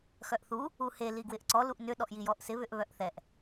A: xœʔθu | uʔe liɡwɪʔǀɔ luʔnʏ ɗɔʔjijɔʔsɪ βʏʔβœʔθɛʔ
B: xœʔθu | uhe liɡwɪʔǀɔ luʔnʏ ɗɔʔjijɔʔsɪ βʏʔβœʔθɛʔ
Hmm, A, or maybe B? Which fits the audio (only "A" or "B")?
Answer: B